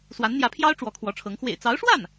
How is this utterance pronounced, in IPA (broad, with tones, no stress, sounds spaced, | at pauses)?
s w a˧˥ n n̪ j ä˧˥ pʰ j ɑ˥ ʊ̯ ʈ͡ʂ w ɔ˧˥ kʰ w ɔ˧˥ ʈ͡ʂʰ ɤ˧˥ ŋ x w ḛ˨˩ ɪ̯ t͡s ɑ˧˥ ʊ̯ ʂ w a˥˩ n